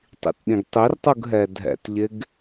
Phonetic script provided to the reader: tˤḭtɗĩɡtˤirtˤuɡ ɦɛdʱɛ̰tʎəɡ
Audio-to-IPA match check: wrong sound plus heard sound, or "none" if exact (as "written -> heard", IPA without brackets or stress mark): ə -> ɪ